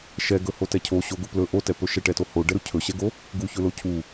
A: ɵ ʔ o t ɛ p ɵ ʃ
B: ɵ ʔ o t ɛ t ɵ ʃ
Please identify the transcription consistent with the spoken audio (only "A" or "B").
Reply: A